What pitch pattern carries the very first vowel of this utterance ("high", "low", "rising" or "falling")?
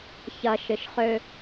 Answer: low